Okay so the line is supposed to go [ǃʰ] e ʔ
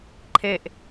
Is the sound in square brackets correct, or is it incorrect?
correct